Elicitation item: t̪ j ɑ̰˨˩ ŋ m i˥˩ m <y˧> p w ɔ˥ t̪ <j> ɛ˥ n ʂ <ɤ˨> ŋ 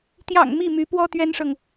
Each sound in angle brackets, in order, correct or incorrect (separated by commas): incorrect, incorrect, correct